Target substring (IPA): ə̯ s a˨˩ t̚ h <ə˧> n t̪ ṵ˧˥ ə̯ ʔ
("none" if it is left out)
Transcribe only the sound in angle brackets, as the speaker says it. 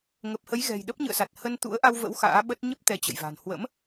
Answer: ə˧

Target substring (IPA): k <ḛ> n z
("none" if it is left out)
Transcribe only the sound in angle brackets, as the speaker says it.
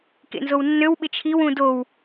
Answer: ḛ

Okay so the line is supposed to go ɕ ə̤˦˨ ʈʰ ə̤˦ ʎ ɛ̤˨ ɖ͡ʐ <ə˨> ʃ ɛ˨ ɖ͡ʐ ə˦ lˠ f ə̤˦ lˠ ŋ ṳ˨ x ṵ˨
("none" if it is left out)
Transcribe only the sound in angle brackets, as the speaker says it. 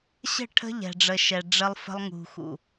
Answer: ə˨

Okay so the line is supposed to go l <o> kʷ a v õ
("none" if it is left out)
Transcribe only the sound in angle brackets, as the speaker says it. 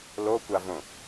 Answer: o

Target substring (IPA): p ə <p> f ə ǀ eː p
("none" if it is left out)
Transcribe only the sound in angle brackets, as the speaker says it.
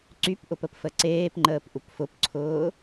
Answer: p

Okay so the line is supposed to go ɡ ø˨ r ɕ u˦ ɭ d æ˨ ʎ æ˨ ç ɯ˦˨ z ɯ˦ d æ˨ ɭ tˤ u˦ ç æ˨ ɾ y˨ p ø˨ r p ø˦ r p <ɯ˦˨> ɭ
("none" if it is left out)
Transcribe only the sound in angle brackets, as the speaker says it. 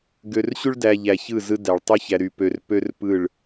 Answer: ɯ˦˨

